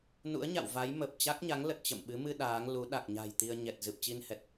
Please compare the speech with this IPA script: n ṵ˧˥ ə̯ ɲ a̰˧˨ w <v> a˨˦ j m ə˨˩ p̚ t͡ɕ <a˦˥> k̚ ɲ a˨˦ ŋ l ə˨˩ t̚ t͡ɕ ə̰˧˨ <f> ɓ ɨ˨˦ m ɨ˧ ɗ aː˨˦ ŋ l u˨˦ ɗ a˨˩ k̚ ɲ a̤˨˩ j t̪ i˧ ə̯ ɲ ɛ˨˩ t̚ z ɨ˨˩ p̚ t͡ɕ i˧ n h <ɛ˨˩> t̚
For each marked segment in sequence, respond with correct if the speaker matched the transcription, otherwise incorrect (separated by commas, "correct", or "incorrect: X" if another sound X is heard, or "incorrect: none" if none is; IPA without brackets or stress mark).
correct, correct, incorrect: m, correct